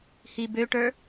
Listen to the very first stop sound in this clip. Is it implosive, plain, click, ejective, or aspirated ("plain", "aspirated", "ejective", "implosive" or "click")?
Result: plain